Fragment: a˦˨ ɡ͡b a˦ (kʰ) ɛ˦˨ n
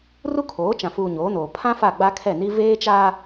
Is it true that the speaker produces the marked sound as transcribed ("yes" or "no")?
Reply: yes